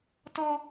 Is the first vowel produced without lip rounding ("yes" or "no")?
no